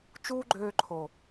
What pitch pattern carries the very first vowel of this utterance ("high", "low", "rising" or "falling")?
high